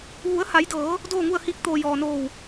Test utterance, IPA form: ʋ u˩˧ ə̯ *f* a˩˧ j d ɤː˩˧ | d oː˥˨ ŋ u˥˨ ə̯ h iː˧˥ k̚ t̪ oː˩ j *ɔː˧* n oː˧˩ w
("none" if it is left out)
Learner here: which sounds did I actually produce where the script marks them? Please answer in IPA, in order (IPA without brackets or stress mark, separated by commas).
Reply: h, ɔː˩